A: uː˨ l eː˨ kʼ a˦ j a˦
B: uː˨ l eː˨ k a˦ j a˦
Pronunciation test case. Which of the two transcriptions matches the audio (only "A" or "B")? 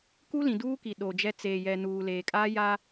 A